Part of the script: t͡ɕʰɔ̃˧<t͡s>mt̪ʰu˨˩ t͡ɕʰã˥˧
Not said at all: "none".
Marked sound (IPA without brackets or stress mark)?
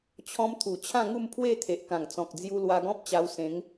none